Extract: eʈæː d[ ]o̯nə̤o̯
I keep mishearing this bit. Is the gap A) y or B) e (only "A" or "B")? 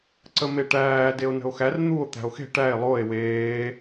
B